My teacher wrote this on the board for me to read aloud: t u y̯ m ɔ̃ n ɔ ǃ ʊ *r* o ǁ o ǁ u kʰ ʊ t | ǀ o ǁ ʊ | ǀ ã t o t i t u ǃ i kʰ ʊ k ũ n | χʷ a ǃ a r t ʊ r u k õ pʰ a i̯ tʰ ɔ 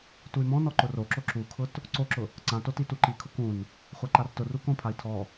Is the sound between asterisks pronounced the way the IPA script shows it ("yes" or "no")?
yes